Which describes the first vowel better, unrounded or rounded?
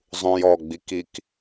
rounded